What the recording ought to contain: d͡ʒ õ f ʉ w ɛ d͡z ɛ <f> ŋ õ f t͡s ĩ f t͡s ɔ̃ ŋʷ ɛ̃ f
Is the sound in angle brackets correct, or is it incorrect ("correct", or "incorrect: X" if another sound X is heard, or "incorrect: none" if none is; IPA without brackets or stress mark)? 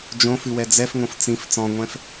correct